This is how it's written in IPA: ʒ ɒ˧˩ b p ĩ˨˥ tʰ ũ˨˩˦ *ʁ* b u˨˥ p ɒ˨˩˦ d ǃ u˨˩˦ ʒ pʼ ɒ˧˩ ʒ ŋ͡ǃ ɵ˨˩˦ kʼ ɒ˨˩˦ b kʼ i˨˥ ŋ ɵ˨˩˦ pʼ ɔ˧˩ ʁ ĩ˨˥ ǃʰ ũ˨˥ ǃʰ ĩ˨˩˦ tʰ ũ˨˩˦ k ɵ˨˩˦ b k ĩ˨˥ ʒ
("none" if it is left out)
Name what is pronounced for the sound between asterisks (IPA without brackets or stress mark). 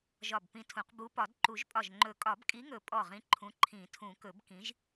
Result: q